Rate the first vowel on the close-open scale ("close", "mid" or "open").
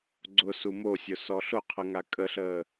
close